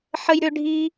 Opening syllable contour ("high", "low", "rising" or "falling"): high